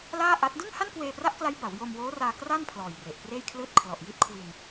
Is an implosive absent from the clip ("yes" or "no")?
yes